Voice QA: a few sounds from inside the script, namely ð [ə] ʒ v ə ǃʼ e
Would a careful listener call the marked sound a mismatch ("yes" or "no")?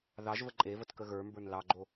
yes